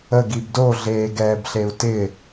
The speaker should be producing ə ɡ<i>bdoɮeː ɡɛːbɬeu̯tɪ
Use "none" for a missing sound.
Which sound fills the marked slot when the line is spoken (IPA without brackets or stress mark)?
i